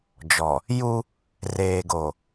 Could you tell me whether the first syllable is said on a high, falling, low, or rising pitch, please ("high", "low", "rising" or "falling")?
low